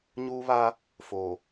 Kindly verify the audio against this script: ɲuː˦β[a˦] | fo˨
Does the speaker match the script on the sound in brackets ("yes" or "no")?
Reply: yes